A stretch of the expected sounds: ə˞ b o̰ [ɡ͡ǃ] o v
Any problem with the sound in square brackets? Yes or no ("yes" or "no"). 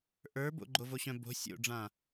no